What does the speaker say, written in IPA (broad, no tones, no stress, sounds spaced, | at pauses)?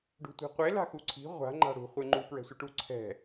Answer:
ɖ ṳ tʷ i̤ qʷ e l a̤ x u ǀʰ i̤ ʁʷ a̤ ŋ͡ǃ a̤ ɽ ṳ χʷ e ŋ͡ǃ u p ɹ ɛ̤ sʷ ɯ ʈ u ǀʰ ɛ̤